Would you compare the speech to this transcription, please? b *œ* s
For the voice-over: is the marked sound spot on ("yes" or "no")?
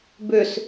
no